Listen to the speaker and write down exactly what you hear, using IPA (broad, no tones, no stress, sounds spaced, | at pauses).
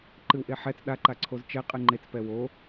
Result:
ǃ ɨ w ʔ e ħ ɛ t͡s ɗ a ǃ a ǀʰ o z t͡ʃ ɛ qʼ ɨ ŋ͡ǃ e t͡s p ɛ w o